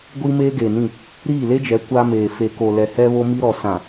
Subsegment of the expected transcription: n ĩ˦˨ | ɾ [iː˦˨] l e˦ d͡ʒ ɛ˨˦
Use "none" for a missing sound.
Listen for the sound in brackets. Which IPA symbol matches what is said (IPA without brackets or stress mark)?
iː˦˨